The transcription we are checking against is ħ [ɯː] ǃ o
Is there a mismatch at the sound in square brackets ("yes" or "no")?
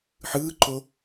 no